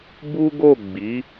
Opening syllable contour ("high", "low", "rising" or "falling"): high